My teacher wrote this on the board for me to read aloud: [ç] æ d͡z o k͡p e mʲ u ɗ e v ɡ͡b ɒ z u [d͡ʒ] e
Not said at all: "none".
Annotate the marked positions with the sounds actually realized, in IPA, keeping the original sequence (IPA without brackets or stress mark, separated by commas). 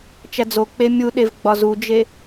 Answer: t͡ʃ, d͡ʒ